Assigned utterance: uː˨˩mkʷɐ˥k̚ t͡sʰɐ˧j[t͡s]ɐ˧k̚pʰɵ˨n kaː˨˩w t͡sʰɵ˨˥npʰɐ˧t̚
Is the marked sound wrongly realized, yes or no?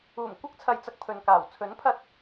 no